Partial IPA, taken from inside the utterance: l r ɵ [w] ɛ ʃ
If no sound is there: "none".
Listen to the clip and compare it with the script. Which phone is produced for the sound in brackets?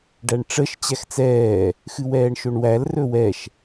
w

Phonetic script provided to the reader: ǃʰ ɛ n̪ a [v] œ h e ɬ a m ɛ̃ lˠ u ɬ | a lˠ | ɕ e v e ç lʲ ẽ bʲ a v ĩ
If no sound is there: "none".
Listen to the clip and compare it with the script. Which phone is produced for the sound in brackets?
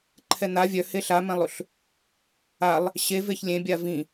vʲ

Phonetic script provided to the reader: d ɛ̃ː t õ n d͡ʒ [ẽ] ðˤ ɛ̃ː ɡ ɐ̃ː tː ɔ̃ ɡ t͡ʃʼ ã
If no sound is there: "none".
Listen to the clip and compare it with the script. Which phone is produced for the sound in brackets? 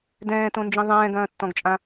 ĩ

